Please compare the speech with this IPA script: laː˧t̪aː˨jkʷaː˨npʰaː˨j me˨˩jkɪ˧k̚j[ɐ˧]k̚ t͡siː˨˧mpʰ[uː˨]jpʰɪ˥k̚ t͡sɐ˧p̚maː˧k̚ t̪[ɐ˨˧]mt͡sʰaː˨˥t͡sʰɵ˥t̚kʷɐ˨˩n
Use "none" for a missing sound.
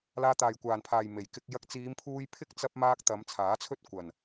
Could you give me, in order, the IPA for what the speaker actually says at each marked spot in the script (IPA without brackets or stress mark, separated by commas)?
ɐ˧, uː˧, ɐ˨˧